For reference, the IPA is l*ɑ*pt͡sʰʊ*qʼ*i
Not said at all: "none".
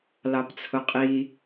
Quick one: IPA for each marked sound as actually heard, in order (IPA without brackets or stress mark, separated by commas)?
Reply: ɑ, qʼ